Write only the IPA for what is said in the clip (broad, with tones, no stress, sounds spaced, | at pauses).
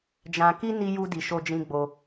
d͡ʒ ã˧ k i˦ n i˦ j u˦ d i˧ ʃ o˧ d͡ʒ ĩ˧ ɡ͡b o˧